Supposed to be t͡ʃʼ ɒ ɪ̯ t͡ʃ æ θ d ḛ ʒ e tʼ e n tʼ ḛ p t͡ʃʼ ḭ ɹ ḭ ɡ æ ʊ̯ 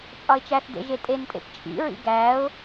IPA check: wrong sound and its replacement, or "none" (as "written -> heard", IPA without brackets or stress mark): none